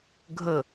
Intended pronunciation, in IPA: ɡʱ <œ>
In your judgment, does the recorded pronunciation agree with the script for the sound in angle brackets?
no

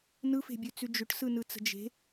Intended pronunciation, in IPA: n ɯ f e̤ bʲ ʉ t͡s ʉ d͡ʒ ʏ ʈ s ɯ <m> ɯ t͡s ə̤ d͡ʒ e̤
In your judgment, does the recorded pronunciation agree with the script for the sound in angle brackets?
no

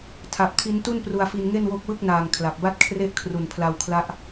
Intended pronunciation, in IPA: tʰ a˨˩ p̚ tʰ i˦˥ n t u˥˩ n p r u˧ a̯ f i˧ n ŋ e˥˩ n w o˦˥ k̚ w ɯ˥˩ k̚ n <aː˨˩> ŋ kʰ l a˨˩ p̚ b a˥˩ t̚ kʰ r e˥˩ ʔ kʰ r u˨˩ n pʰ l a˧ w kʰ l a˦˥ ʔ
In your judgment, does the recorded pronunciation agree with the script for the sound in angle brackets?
yes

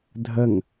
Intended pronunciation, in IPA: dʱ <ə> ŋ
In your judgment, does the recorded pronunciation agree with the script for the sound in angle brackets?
yes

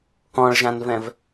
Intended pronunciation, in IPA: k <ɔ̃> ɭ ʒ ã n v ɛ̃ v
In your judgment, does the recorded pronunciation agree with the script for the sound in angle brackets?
yes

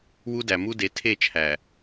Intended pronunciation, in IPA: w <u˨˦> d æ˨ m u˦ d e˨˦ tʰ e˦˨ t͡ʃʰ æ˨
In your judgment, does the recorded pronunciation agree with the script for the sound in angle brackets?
no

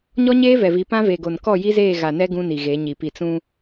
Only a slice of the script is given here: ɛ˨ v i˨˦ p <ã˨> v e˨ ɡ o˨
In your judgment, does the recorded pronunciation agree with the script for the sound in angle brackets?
no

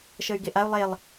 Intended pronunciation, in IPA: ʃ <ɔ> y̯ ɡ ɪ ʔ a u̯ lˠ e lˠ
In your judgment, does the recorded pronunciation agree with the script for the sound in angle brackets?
no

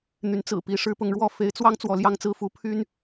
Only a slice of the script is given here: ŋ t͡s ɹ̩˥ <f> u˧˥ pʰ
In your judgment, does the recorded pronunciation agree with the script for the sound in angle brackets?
yes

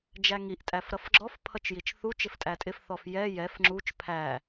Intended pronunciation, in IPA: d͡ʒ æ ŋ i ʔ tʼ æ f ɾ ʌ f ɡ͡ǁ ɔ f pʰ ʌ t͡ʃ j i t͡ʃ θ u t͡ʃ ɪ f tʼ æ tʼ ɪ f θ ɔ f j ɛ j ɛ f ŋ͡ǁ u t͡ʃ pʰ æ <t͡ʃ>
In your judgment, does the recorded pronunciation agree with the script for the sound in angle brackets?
no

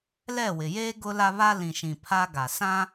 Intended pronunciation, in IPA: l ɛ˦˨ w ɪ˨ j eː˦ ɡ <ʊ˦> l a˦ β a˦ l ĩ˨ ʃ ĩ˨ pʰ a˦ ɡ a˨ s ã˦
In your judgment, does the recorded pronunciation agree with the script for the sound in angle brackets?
yes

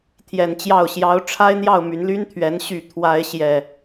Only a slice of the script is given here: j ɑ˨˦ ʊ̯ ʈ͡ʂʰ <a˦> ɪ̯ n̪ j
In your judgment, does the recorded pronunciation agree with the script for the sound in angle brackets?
yes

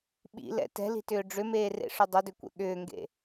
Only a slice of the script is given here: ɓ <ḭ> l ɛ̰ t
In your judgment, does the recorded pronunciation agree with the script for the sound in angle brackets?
yes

